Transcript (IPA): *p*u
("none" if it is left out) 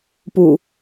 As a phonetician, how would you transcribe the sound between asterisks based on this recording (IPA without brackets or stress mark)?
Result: p